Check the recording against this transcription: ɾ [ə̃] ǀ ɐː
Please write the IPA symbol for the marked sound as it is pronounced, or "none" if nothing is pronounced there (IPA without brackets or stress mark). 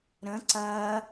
ə̃